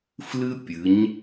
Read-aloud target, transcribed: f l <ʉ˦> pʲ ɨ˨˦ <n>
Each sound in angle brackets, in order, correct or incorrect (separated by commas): incorrect, incorrect